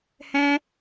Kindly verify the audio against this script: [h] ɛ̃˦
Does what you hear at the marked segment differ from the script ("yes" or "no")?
no